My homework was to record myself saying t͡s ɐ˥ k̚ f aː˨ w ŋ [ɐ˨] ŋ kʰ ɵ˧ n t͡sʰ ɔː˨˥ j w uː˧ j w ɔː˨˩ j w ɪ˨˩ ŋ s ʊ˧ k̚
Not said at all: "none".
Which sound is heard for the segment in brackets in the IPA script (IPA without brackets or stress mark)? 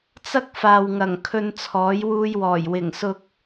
ɐ˨˩